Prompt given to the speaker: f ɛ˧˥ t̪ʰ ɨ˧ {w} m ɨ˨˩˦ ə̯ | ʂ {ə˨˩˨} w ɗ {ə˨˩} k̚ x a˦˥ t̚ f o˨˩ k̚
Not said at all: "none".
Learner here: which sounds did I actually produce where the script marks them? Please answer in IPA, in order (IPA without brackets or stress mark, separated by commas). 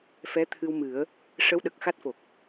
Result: w, ə˧˥, ə˨˩